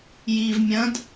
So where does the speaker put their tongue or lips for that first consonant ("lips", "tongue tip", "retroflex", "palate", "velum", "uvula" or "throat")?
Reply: palate